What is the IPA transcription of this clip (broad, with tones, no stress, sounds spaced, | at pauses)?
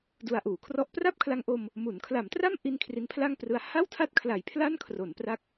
d u˧ a̯ ʔ uː˩˦ kʰ r ɔ˥˩ ʔ p r a˥˩ p̚ kʰ l a˧ ŋ ʔ o˧ m | m u˩˦ n kʰ l a˩˦ m t r a˥˩ m ʔ i˧ n kʰ r i˦˥ n pʰ l a˥˩ ŋ p r ɯ˦˥ a̯ h a˥˩ w tʰ a˥˩ t̚ kʰ l a˨˩ j pʰ l a˥˩ n kʰ r o˩˦ n p r a˦˥ k̚